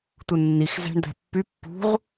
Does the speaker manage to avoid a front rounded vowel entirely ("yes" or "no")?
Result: no